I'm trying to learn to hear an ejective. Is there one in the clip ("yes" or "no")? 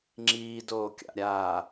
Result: no